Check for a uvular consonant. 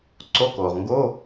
present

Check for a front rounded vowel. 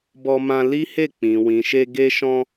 absent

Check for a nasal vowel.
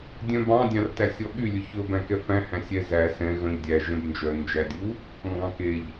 present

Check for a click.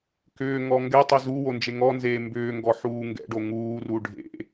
absent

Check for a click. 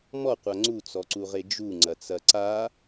present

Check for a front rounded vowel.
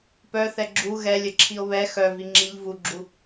present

